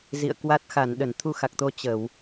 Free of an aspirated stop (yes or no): no